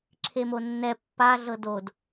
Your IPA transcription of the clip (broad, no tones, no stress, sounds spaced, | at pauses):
ǁʰ e m o nː ɛ pː a ɮ ɤ d o d